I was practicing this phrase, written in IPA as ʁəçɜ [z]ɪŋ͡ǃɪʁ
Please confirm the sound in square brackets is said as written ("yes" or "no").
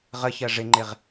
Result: no